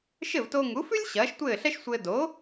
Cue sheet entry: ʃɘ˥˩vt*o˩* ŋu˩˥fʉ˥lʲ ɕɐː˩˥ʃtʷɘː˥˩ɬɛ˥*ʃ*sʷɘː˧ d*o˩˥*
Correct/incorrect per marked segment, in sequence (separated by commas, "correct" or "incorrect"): incorrect, correct, correct